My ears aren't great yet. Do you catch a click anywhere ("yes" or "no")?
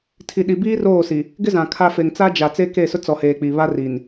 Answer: no